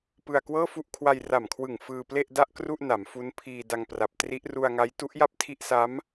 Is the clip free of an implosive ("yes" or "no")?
yes